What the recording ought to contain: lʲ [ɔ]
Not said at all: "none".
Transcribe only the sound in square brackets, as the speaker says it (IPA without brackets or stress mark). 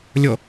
ɔ